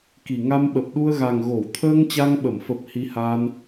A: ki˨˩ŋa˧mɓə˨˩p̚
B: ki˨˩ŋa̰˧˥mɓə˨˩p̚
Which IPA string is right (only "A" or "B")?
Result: A